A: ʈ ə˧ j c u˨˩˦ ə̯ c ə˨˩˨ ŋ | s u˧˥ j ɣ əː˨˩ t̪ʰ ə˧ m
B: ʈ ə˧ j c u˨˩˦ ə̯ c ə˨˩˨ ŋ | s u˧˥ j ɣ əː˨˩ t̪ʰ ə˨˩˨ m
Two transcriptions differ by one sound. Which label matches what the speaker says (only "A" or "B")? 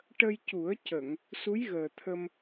A